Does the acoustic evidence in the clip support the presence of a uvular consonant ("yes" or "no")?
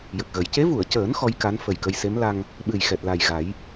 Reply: no